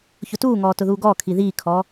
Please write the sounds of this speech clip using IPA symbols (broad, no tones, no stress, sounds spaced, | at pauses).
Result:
ç ʊ t uː ŋ ɔː t ʊ ð uː ɡ ɔː kʰ i ð iː kʰ ɔː